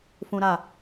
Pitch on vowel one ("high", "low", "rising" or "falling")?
high